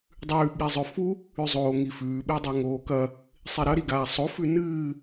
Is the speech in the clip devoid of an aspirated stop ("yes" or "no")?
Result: yes